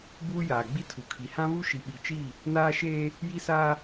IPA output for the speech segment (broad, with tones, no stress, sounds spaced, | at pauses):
b uː˦ j aː˨ ɡ͡b i˦ tʰ u˨ kʰ i˨ h ã˦ β u˦ ʃ i˨ ɓ i˨ t͡ʃ i˦˨ | n aː˦ ʃ eː˦ | j i˦ s aː˦